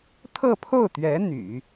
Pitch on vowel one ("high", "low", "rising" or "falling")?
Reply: falling